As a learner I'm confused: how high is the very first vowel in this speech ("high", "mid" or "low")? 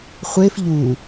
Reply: mid